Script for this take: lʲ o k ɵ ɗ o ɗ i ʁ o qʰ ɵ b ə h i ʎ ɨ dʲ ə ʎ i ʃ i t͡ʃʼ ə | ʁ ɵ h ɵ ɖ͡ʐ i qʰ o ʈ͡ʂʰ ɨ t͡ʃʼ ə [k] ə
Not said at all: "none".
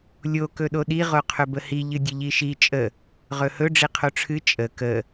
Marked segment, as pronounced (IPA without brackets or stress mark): k